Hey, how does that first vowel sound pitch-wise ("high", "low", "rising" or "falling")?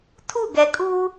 falling